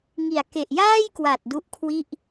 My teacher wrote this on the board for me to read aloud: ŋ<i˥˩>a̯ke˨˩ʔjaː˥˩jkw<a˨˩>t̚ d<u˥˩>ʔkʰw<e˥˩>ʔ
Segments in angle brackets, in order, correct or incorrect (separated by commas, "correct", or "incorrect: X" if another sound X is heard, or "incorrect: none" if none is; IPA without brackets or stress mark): incorrect: i˨˩, correct, incorrect: u˦˥, incorrect: i˥˩